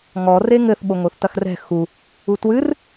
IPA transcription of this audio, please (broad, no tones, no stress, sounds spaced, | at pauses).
ŋ ɔ r e ŋ ɘ θ ɓ o ŋ o θ t ɐ x r ɛ̤ x u | u t w ɨ r